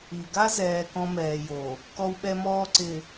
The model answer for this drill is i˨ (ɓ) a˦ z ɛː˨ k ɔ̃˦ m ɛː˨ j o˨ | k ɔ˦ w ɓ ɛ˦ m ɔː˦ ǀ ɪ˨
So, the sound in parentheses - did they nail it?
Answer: no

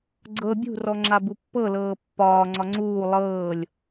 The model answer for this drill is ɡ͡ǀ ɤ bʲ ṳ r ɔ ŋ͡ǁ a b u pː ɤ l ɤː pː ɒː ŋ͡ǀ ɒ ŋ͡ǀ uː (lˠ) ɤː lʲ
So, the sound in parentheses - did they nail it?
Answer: yes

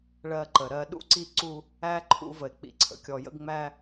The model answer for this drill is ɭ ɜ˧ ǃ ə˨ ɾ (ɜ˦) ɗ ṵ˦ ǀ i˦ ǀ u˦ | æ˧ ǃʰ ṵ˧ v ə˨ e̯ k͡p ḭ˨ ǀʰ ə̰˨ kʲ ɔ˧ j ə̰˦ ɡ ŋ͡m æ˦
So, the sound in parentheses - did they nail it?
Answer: no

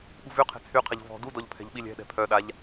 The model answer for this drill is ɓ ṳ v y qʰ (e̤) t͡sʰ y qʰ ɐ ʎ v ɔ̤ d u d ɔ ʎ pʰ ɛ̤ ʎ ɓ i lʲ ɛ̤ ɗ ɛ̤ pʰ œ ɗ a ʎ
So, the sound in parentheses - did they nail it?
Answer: yes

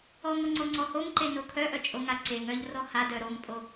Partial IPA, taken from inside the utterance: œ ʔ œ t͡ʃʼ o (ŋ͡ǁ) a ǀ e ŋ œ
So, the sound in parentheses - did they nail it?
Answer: no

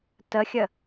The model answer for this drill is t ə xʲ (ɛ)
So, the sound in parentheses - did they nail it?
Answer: no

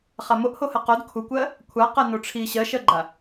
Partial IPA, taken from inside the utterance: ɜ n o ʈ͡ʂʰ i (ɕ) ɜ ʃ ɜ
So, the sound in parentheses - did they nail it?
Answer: yes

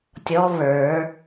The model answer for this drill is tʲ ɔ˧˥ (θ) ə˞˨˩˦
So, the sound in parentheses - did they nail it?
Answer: no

